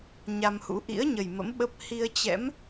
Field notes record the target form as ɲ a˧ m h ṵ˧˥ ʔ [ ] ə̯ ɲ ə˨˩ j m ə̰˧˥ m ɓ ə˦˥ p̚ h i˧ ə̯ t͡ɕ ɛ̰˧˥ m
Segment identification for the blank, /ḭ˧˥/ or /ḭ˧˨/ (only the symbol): ḭ˧˥